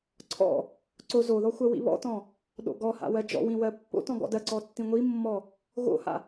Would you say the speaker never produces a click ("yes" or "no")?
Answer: no